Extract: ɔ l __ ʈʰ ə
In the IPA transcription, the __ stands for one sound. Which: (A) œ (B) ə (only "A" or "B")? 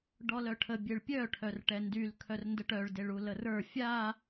A